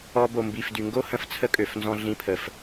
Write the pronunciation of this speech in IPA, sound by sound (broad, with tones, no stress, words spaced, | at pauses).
ɔ˧bo˨ mbi˨fdy˨ŋɡo˦ hə̃˧ft͡sʰə˦kʼø˨fnzɔ̃˧ ɮĩ˧pʰə˨f